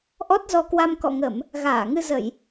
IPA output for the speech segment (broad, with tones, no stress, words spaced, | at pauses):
ʔɔ˦˥t̚zɔ˧kwa˧m kɔ̰˧˨ŋə˧˩˨m | ɣaː˧˩ŋɨ˧zə˧˩˨j